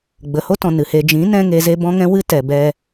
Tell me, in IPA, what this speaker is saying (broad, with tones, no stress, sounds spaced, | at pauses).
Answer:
ɡ͡b ə˨ h o˦ t ɔ̃˨ n ɨ˨ h e˧ d͡ʒ ĩ˨˦ n ɛ̃˧ ŋ e˨ z e˧ b ɔ̃˦ ŋ ɛ̃˦ w ɨ˦ t ɛ˨ b ɛ˧